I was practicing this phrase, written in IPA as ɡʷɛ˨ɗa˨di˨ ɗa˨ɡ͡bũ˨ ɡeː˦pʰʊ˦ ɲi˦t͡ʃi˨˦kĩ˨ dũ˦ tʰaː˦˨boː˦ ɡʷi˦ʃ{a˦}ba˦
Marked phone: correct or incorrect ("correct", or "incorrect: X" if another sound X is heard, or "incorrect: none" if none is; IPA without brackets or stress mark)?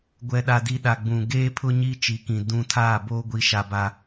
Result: correct